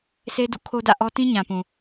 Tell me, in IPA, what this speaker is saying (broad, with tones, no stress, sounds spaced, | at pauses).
sʰ e˦ d ṵ˦˨ kʰ o˦ d ä̰˦˨ ʔ ɔ˦ t ĩ˦ ɲ ã˨ p ũ˨